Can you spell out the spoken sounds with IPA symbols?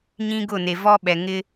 ɲ ĩ˦ ɡ ʊ˦˨ n e˨ v ɔ˦ ɓ ɛ˨ ŋ ɪ˦

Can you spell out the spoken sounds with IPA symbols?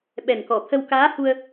ɓ ɛ˨˩ n k ɔ˨˩˨ t̪ʰ ə˧ w k aː˧˥ h u˧ ə̯

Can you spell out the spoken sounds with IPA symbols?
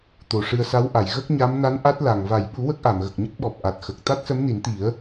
t̪ o˨˩ ʂ ɨ˧ ə̯ s a˧˥ w ʔ a˨˩˨ j ɣ ə˦˥ k̚ ɲ a˧˥ m n a˧˥ n ʔ a˦˥ t̚ l a˨˩ ŋ v a˨˩˨ j ɓ u˨˩˦ w ə˦˥ k̚ ʔ a˨˩˨ m ɣ ə˨˩ k̚ ɲ ə˦˥ k̚ ɓ ɔ˨˩ p̚ ʔ a˨˩ t̚ x ə˨˩ k̚ t̪ a˦˥ t̚ s ə˧˥ m n i˨˩˦ n t̪ i˨˩˦ ə̯

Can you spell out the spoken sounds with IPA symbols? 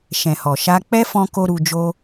ʃ ɛ̃˨ h ɔ˨ ʃ a˧ k͡p ɛ˦ f ɔ̃˧ k o˦ ɾ u˧ d͡ʒ o˦

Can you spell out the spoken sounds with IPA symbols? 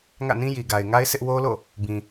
ŋ ä̰˦˨ n ĩ˦ j i˨ ɡ a˨ ɪ̯ ŋ a˦ ɪ̯ s ɪ˦ ʔ w o˦ l o̰˦˨ | b ĩ˨

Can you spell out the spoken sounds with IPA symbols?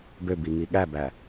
b ø b i ŋ i ɠ æ b æ

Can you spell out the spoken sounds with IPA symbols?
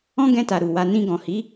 ɔ̃˦ ɡ ɛ̃˧ t a˨ ɾ u˨ w a˧ n ĩ˧ ɡ ɔ̃˨ h i˨˦

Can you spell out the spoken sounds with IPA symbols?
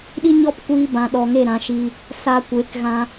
ɗ i˦ ɲ ɔ˦ p kʷ iː˧ b ã˨ ɗ ɔ˨ ŋ e˦˨ ɾ ã˧ ʃ i˧ | s a˧ kʷ e˨˦ k ɣ ã˧

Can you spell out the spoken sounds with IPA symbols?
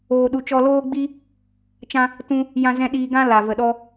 oː˧ ɗ u˧ t͡ʃ ɔ˧ l oː˦ ɡ͡b i˦ | t͡ʃ ã˧ | t ũ˧ | j ã˧ z ɛ̃˧ ɗ iː˧ ɡ ã˦ l a˨ v ə˨ ɗ ɔ˧

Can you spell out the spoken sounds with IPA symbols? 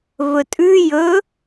v ɵ tʼ ʉ j ɵ

